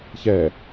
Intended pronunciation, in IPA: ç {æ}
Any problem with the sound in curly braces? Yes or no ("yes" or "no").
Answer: yes